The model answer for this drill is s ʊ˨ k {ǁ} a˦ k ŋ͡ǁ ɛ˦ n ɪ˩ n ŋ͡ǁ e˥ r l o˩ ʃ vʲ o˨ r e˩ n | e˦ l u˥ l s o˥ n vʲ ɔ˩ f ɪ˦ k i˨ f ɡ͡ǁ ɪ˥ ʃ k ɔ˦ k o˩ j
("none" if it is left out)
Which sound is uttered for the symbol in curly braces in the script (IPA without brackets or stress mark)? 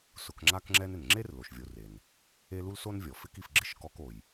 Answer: ŋ͡ǁ